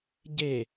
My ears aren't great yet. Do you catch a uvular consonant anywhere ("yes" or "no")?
no